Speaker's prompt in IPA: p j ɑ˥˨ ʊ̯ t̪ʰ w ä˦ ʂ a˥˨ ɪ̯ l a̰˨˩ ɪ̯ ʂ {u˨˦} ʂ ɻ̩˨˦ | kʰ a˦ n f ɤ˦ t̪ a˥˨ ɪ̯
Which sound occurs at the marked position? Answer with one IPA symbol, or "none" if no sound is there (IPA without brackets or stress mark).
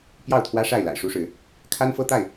u˦